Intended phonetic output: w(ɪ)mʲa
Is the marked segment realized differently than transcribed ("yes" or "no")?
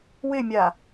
no